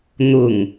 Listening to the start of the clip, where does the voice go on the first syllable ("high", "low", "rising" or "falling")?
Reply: low